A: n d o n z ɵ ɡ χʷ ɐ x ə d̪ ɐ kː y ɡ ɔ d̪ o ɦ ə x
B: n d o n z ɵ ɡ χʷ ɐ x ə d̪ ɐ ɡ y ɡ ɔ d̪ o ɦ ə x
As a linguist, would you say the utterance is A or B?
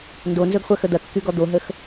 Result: A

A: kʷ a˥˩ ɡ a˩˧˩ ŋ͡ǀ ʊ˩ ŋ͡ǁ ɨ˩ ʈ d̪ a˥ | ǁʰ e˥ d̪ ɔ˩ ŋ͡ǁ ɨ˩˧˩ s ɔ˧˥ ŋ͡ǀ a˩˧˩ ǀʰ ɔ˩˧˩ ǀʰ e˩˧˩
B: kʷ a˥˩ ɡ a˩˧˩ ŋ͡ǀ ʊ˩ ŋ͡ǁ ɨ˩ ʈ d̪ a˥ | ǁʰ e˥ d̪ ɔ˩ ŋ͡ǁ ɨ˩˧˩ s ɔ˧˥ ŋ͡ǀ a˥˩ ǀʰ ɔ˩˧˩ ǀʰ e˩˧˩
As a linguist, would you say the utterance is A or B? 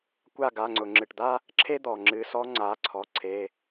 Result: A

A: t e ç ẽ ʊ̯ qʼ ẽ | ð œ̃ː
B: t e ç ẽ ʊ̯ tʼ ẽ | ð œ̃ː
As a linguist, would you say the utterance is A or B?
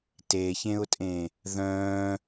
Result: B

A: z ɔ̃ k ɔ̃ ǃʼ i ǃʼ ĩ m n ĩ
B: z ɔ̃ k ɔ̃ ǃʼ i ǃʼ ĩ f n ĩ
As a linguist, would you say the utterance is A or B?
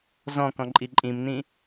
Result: A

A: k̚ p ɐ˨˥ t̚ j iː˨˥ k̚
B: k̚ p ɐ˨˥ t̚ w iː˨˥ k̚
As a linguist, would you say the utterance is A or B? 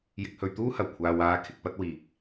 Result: B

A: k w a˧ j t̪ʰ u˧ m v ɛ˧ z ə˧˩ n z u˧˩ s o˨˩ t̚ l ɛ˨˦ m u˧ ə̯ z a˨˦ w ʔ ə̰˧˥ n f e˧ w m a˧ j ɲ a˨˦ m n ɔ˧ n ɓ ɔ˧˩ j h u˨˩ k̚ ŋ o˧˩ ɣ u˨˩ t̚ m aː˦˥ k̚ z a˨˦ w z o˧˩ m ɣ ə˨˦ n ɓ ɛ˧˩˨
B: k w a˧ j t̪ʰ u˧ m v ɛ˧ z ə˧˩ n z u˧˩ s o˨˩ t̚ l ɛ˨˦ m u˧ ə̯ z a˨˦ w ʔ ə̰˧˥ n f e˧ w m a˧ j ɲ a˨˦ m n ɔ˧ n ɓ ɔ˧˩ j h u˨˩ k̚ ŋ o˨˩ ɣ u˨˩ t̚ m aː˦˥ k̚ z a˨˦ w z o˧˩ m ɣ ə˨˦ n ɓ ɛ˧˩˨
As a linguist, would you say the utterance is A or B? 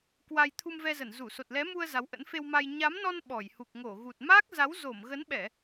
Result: A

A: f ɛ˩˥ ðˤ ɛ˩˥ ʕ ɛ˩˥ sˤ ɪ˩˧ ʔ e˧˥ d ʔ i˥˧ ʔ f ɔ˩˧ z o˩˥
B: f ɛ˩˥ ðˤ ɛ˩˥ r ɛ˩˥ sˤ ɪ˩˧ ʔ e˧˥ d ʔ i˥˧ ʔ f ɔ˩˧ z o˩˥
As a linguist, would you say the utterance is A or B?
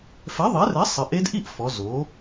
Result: B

